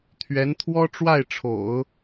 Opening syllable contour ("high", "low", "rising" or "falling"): rising